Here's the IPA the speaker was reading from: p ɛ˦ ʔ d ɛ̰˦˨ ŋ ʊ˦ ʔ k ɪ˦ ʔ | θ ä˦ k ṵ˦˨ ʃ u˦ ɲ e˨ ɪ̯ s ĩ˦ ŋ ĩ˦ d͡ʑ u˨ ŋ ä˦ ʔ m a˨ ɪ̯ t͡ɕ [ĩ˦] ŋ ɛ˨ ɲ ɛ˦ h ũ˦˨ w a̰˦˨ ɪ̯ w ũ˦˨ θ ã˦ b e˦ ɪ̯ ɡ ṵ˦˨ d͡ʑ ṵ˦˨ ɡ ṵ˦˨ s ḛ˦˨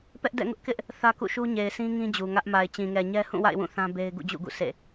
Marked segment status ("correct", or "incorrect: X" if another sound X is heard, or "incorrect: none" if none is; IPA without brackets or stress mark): incorrect: ĩ˨